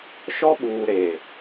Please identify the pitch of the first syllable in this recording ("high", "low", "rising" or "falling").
high